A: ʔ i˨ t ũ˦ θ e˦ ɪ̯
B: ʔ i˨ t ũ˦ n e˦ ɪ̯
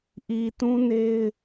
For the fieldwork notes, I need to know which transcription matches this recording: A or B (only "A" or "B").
B